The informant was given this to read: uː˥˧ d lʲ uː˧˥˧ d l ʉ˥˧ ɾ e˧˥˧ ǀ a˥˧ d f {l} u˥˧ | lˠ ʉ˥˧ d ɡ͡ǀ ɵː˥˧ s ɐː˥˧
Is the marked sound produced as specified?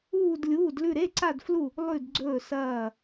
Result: yes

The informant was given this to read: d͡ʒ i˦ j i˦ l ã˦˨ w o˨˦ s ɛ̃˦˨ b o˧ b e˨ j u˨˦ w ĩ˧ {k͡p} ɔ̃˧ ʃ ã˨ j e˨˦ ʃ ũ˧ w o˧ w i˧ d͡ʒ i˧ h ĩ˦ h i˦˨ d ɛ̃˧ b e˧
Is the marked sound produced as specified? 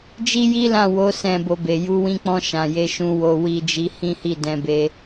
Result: yes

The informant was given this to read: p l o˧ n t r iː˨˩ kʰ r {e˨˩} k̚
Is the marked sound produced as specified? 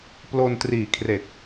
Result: yes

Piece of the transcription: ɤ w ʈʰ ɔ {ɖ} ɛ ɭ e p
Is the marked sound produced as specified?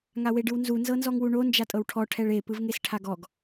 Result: no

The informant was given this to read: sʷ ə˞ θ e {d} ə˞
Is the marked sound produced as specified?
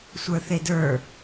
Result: yes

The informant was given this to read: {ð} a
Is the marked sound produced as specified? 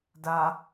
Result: no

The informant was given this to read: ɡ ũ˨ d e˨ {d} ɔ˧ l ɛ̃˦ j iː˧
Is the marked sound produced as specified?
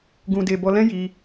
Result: no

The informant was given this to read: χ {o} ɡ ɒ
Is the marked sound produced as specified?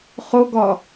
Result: yes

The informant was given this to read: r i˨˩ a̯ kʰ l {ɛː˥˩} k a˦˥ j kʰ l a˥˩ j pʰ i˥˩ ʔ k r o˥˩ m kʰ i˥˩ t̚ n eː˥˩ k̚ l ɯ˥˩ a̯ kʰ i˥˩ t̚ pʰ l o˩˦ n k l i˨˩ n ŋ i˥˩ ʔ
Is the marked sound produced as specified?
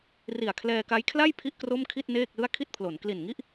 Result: no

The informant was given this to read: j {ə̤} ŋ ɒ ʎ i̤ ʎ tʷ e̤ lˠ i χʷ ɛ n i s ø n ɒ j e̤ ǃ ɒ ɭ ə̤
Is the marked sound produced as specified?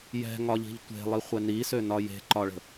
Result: no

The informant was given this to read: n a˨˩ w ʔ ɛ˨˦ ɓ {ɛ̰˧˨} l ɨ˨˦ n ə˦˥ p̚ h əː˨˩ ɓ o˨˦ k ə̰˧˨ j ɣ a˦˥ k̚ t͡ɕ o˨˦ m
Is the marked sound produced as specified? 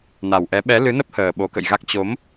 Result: no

